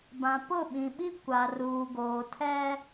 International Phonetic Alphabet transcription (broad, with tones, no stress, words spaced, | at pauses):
bã˨pʊ˦˨ɓĩ˨ɓi˦ kʷa˨ruː˨ɡoː˨ tʰɛ˦